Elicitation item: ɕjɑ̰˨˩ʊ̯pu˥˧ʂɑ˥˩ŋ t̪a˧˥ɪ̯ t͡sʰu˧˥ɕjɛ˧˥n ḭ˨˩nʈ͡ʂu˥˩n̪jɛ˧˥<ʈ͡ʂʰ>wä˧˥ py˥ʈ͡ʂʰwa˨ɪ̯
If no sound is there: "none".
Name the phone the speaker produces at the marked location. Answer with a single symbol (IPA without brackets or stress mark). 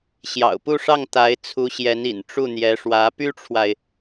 ʂ